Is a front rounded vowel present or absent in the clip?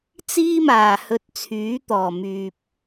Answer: present